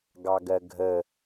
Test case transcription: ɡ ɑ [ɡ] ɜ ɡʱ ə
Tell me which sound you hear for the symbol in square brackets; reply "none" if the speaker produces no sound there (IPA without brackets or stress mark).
ɡ